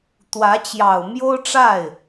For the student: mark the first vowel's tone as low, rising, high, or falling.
rising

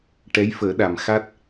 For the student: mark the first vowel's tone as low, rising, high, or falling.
rising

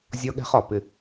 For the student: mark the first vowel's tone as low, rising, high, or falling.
high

